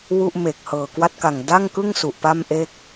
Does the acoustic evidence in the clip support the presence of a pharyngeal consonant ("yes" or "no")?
no